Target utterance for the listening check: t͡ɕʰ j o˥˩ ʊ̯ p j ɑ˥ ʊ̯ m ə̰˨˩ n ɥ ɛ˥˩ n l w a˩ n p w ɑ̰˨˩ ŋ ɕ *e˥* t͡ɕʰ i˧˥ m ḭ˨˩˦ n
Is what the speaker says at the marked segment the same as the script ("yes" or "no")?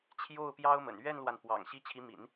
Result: no